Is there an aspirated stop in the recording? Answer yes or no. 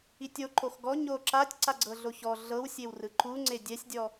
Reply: no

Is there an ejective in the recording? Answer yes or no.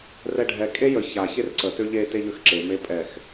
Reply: yes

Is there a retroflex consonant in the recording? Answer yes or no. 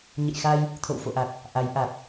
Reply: no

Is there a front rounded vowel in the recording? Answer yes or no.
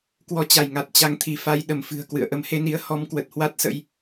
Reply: no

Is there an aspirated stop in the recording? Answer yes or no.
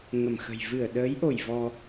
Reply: no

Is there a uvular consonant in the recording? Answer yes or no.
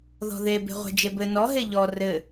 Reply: yes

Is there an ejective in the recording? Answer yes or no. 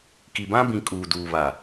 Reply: yes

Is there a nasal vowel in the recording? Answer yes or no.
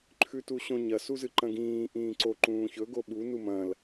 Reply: yes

